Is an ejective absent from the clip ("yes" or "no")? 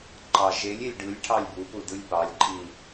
no